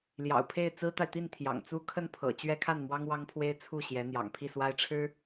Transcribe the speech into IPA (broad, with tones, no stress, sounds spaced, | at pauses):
l j ɑ̰˨˩ ʊ̯ pʰ e˥˩ ɪ̯ t͡s ɹ̩˥ t̪ a˨ ɪ̯ t̪ i˥˩ n t̪ʰ j ɑ̰˨˩ ŋ t͡s u˥ kʰ ə˥˩ n pʰ ɤ̰˨˩ t͡ɕ ɥ ɛ˥ kʰ a˥˩ n m w ɑ˥ ŋ w ɑ˥ ŋ pʰ w e˥ ɪ̯ t͡sʰ u˥˩ ɕ j ɛ˧˥ n̪ j ɑ̰˨˩ ŋ pʰ i˥˩ s w a˥ ɪ̯ ʈ͡ʂʰ ɻ̩˥